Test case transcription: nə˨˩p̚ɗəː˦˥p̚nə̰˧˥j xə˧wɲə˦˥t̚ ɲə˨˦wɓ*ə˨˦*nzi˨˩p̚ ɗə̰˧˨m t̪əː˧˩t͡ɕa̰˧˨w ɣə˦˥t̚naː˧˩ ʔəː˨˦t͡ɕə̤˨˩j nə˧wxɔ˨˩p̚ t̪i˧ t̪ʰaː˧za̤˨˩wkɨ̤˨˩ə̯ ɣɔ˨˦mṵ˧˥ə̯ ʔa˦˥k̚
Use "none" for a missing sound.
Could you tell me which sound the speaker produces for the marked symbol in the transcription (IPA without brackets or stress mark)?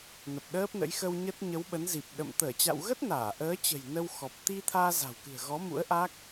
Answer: ə˨˦